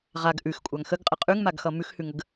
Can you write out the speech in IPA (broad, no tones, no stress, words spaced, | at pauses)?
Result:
ʁaɡ ʔʉxkʷʼaŋ xəɡqʼə qʼʉŋmaɡxʌ mʉxhʉŋəɡ